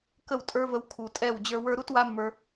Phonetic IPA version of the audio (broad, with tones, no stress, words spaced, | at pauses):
kə˦˨w tʼə˞˦və˧w kʰu˨tʼɛ˦˨w d͡ʑə˞˧wə˞˦ ɾu˦twa˦mːə˞˧